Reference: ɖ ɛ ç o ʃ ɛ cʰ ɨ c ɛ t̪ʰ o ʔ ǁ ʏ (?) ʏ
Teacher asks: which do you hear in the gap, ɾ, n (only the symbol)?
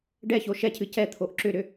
ɾ